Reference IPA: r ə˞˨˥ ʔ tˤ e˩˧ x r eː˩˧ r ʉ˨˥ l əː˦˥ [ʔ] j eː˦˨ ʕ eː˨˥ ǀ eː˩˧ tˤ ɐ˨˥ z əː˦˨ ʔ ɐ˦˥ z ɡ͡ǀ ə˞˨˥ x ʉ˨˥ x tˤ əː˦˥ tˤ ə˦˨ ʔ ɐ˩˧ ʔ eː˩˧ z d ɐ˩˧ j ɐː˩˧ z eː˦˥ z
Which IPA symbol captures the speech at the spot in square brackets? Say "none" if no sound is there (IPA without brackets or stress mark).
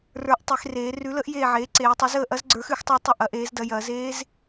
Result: ʔ